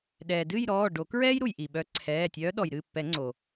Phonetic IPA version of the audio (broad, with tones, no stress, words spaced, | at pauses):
ɗɛː˩dɨ˥˨jɾɔː˩˧˩ ɖo˨˩˦kɹɛː˥jɾu˩j ʔi˩ɓœ˨˦ ǀʰɛː˩˧˩ tʲœː˨˦ɗɔ˩jɾɨ˩˧˩pːɛ˨˩˦ ŋ͡ǀo˩